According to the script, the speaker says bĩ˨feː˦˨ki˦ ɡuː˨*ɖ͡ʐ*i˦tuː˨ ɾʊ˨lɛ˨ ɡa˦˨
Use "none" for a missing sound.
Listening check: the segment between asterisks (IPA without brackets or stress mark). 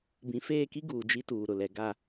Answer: d͡ʒ